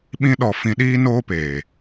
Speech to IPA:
ɓĩ˦ɗɔ˧ fĩ˧ ɗiː˦noː˦peː˨

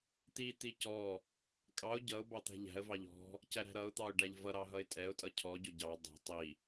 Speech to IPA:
t̪i t̪icɔ | kʼɑʊ̯ ɟʌʊ̯ bɑt̪æ̤ʎæ̤ə̯ vɑʎɔ̤ | cæɾæ̤ɾʌʊ̯ t̪ɑʊ̯ɖæʎvʌ ɾɑɦʌɪ̯tʼɛʊ̯ tʼʌcʰɔ ɟʊɟɑ dˤæ̤ tˤi

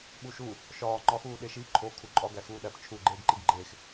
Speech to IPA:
ɓuʃu | ʃɒː ŋ͡ǃɒxuːɗe ʃi ǃʰo kʰuǃʼɒ ɡæxuːɗæp t͡ʃʰu ɡ͡ǃeːɡǃiɡɡ͡ǃeːx

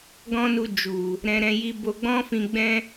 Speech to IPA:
ɡɔ̃˦nu˧ d͡ʒu˨ | ɾɛ̃˧ɾɛ̃˧ ji˧bo˧ɡ͡bɔ̃˦ fĩ˧ɡ͡bɛ̃˦

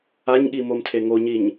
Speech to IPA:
aɲɠimomtʰe ŋoɲiɲ

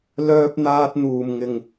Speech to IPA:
lœː˧p̚n̪aː˧t̚ n̪uː˨˩mŋɪ˨˩ŋ

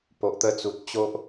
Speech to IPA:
po˨ʔt̪ə˧t͡su˨t̚ t͡ɕo˦ʔ

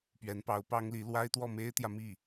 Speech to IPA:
pɥɛ˧˥npɑ˧˥ʊ̯pɑ˥ŋli˧˥ lwa˥ɪ̯t̪wɔ˥˩ me˥ɪ̯t̪jä˨mi˥˩

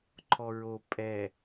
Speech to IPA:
ǃʰɔɹo pʼɛ

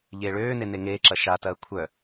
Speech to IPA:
ʎeːɭøːne neŋeːǁɐ ʃatɐː kʷʰœ

